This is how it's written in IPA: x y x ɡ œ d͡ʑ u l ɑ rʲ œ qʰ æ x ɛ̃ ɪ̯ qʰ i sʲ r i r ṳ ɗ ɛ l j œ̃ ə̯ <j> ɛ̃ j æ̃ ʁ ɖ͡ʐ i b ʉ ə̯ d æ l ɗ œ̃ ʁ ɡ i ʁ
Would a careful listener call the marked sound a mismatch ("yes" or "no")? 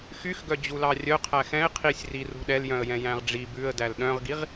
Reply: no